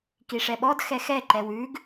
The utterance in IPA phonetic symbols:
k i ʂ ɛ ɓ ɔ d x ɛ x ɛ ǃ ɛ w ʉ ɡ

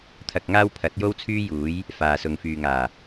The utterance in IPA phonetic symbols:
t̪ʰ ɐ˧ k̚ ŋ aː˥ w pʰ ɐ˨˥ t̚ j o˥ w t͡sʰ yː˥ j uː˨˥ j | f aː˨ s ʊ˨ ŋ f yː˨ ŋ aː˨˩

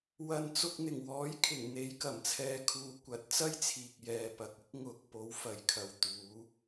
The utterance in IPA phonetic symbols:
w ɐ˨ n t͡s ʊ˧ k̚ n̪ ɪ˨˩ ŋ w ɔː˨˥ j kʰ ɪ˨˩ ŋ n̪ e˨˧ j k ɐ˨˩ m t͡sʰ ɛː˨˧ kʰ uː˨ kʷ ɐ˨˥ t̚ t͡s ɐ˥ j t͡sʰ iː˨ k̚ j ɛː˨ p ɐ˨ k̚ ɪ˥ k̚ ŋ ʊ˨ k̚ p o˨˥ w f ɐ˨˧ j kʰ ɐ˨ w t̪ uː˨˥

